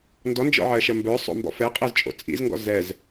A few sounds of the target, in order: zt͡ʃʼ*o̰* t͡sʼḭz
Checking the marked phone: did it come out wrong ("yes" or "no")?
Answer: no